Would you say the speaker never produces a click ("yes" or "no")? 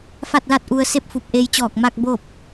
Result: yes